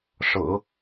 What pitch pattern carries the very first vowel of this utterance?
low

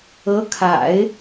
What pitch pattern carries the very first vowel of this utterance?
rising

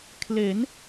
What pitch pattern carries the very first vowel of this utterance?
rising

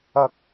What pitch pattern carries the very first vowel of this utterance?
low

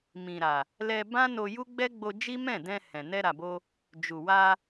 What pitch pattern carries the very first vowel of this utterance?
low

